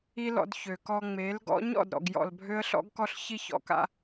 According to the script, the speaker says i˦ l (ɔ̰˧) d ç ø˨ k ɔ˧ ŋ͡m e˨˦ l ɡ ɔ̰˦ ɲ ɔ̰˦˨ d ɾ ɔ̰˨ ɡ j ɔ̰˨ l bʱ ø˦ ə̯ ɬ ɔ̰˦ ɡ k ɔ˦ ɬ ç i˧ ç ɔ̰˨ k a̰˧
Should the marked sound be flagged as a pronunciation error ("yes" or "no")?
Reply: no